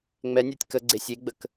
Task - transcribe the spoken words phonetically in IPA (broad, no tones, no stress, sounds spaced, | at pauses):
ŋ͡m ɛ nʲ a tʲ k ə ɡ͡ǀ e sʲ e ɡ͡b ə k